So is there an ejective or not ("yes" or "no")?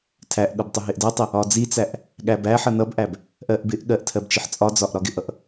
yes